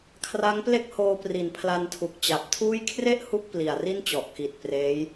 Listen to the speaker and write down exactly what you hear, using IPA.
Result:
kʰ r a˦˥ ŋ p l e˥˩ k̚ h oː˧ p r i˨˩ n pʰ l a˧ n tʰ u˨˩ k̚ t͡ɕ a˨˩ p̚ tʰ uː˥˩ j kʰ r e˥˩ ʔ h u˦˥ k̚ p l i˨˩ a̯ r i˥˩ n t͡ɕ ɔ˨˩ ʔ k i˨˩ t̚ p r eː˦˥ j

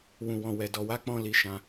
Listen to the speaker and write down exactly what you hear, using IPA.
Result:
w ũ˨ w ɔ̃˨ w ɛ˨ d ɔ˨ w a˨˦ k͡p ɔ̃˧ l i˧ ʃ ã˧

